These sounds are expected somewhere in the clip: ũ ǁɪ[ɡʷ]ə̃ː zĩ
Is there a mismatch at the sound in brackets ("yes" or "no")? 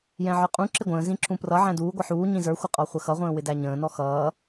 no